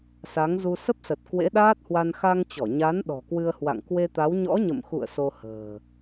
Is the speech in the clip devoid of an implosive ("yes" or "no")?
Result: no